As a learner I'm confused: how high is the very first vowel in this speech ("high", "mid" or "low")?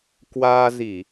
low